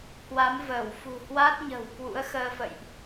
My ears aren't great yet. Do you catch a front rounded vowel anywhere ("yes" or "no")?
no